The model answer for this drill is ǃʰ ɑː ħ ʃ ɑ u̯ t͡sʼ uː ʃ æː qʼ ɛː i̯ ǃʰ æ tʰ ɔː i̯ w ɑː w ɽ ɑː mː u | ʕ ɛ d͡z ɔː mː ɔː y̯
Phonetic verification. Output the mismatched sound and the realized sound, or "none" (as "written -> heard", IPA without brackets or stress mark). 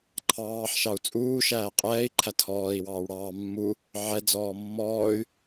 none